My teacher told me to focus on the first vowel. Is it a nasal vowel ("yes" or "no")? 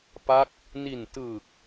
no